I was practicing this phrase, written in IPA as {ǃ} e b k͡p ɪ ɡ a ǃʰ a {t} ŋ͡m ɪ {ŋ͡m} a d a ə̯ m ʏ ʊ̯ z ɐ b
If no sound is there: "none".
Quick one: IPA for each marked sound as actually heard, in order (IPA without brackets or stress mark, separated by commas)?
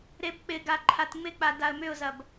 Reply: ɾ, t, k͡p